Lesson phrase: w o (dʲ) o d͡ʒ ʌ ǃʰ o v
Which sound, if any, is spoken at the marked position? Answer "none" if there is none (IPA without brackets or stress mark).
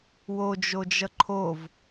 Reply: d͡ʒ